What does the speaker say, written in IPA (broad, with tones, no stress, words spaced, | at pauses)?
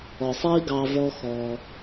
ɔ˨sˤiː˧ ɡɑ˧vɔ˦xɔ˧